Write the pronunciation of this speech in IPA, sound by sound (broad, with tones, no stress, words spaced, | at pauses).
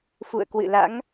fṵ˧˨ə̯kwɨ̰˧˨la̰˧˥ŋ